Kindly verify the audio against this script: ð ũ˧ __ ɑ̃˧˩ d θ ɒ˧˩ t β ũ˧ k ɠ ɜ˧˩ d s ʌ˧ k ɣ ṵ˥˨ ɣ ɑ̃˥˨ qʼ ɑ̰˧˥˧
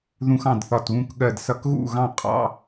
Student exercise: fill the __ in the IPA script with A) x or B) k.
A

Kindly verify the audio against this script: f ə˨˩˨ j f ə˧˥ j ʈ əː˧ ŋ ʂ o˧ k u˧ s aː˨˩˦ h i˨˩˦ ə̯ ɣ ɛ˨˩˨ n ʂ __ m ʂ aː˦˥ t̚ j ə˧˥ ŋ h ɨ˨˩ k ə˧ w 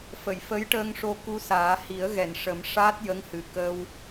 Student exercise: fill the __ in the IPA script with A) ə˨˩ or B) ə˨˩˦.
B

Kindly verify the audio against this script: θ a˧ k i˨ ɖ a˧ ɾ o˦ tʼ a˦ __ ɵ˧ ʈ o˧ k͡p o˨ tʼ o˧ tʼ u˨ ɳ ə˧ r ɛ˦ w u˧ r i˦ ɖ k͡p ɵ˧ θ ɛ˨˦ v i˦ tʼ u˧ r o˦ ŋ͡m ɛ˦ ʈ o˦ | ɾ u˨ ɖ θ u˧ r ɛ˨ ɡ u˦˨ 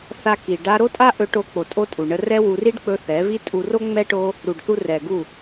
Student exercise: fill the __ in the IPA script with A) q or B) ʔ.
B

